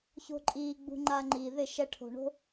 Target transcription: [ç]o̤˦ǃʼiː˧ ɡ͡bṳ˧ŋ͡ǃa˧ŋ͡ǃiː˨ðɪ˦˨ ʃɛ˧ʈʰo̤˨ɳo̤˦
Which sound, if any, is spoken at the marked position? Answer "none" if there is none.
ç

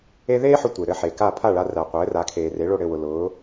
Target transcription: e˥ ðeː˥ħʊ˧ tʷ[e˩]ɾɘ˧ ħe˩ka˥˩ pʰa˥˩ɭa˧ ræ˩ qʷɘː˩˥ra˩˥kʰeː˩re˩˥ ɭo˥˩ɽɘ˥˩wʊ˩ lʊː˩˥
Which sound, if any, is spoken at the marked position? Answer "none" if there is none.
e˩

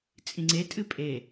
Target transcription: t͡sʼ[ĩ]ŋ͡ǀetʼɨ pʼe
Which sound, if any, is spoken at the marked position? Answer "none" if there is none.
ĩ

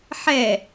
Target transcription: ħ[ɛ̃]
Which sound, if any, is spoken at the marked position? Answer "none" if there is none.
ɛ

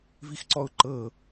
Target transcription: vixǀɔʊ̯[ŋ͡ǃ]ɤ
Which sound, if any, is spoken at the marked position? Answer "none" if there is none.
ǃ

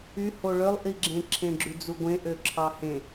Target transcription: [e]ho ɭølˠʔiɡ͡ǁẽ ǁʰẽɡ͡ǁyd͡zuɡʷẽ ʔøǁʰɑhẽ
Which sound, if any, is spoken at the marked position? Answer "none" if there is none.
y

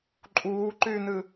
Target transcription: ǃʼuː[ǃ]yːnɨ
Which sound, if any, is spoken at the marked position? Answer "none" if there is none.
ǃ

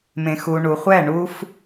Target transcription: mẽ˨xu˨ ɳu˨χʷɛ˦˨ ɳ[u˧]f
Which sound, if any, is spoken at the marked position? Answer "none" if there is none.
u˧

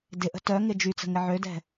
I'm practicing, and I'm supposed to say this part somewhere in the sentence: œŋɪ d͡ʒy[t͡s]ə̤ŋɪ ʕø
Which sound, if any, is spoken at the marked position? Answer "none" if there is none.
t͡s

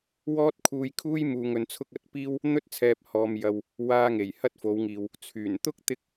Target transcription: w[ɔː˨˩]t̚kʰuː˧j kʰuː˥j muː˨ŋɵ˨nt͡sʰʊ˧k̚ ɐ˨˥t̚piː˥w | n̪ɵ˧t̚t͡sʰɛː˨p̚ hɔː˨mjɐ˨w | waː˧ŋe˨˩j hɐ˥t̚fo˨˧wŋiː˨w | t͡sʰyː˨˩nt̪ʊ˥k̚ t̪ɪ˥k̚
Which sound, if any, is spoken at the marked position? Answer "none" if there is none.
ɔː˥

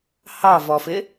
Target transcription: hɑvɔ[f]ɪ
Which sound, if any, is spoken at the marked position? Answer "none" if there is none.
f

